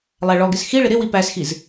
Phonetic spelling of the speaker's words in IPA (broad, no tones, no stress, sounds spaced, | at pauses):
lˠ æ ɭ ɔ ɡ ɪ s x i ɭ ɪ ɾ ɪ w i p æ s x i z